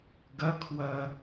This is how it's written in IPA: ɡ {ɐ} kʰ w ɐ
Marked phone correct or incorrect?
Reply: correct